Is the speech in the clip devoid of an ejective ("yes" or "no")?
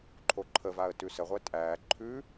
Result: no